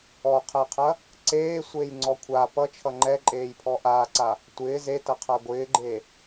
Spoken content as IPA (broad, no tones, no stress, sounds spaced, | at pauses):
ɔ qʰ ɛ qʰ ɐ | ǀ eː sʷ eː j ŋ͡ǀ ɔ kʷʰ a p ʌ t͡ʃʰ ʌ ŋ͡ǃ ɛ ǃʼ eː j pʰ ɔ ʔ aː ǀ a | tʷ ɪː z e t ɐ qʰ a ɡʷ ɪː ɡ͡ǃ e